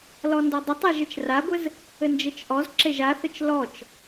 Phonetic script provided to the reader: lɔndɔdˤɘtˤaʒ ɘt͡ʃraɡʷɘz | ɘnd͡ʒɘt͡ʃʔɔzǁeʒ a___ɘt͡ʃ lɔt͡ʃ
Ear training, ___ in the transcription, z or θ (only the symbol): θ